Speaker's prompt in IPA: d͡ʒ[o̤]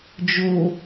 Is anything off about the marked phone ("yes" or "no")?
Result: yes